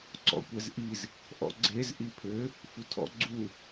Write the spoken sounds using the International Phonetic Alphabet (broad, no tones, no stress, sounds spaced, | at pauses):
ǀ ɔ̰ kʷ ɛ z ʔ i z | ʔ ɔ̰ ɡ͡ǀ e z ʔ i pʰ ø | f u tʰ ɔ̰ ɡ͡ǀ u